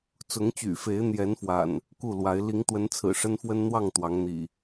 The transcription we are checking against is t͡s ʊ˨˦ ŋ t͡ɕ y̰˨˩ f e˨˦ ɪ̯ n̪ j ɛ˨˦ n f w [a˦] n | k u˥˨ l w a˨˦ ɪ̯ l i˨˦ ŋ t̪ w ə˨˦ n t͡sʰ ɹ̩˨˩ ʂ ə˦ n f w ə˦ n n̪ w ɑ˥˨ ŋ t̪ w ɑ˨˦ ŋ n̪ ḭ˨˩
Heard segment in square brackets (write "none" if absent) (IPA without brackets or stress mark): a̰˨˩